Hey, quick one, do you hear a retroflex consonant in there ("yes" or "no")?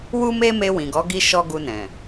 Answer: no